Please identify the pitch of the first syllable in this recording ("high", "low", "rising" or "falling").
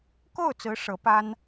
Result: falling